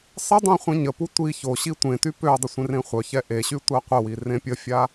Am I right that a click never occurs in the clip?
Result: yes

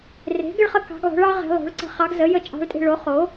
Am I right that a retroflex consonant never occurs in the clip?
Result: no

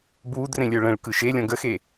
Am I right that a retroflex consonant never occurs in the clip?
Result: no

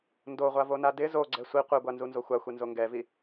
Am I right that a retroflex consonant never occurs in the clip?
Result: yes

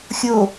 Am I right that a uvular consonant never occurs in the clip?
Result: yes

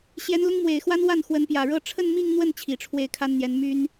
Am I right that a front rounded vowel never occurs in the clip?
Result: no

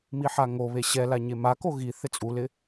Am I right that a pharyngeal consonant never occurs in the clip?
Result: no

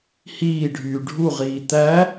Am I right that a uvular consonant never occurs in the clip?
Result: no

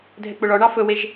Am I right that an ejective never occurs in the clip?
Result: yes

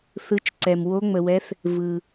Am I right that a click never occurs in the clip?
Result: no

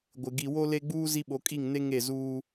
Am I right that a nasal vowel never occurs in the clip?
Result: yes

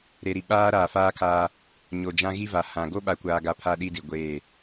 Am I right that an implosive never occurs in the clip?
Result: no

